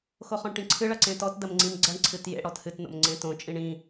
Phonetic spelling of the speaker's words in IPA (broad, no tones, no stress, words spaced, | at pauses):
xoχɔ̃ɳʈĩǀʰɨ ɭɐǀẽtɔt dɐmŋ͡ǀĩmɡ͡ǀɐɳ ǀʰɨtjḛ ɽɔthɨt no̰mŋ͡ǀẽtõ t͡ʃʼĩɳĩ